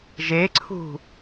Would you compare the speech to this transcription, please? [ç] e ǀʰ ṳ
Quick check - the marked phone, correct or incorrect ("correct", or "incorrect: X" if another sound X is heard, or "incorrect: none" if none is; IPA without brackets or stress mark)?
incorrect: ʒ